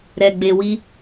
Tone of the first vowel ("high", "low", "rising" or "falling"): low